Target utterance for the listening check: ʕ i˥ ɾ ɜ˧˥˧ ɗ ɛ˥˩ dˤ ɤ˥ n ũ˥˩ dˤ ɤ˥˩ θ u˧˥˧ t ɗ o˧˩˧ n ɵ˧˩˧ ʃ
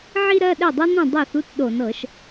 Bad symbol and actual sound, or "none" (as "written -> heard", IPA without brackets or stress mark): ɵ˧˩˧ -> ɤ˧˩˧